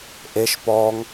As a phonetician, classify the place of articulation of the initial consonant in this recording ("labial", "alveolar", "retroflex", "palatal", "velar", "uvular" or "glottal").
glottal